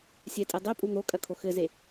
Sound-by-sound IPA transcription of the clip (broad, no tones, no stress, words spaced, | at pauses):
sʲɛtʼe dˤepʼu n̪okʼɐkʰo xɘze